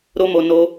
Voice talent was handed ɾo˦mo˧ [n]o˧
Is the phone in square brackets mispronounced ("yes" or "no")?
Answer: no